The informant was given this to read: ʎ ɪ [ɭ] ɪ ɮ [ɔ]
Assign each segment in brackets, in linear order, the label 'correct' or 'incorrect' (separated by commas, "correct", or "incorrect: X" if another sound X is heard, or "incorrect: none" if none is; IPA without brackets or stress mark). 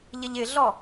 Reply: incorrect: ʎ, correct